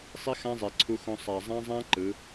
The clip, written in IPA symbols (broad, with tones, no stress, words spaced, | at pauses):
sˤi˦xã˦zˤe˨ ǀʰu˧xõ˧ sˤa˨ zˤã˦zˤã˦ ǃɯ˨˦